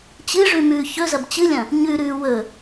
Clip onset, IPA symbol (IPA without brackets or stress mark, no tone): t͡ɕ